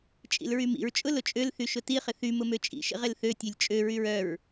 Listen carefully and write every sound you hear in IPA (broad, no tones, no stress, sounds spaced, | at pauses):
t͡ʃʼ ḭ l ɹ y m ḭ ɹ t͡ʃʼ ʊ l ʊ t͡ʃʼ ø l θ y ʃ ʊ t i χ ɪ θ y m ʊ m ø t͡ʃʼ ḭ ʃ ḭ ʁ ɪ l θ ø tʲ ø lʲ t͡ʃʼ ø ɹ y ɹ œ ɹ